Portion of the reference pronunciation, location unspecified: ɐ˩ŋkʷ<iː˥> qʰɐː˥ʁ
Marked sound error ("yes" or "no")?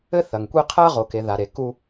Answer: yes